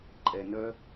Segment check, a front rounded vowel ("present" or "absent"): present